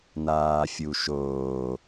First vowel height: low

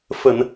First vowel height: mid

